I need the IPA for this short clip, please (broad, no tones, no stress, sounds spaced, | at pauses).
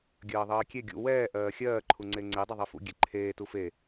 ɡʲ ɜː ðˤ ɜː kʲ e ɡʲ ṵ w ɛː ʔ ɜː xʲ ɜː ǃʰ u ŋ͡ǀ e ŋ͡ǀ e dˤ ɛ ðˤ e f ṵ ɡʲ e ǃʰ eː t u f e